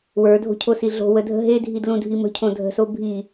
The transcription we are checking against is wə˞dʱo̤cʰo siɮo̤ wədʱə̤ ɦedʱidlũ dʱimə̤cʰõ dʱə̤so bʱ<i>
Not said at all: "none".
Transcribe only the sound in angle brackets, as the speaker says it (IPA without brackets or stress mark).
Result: i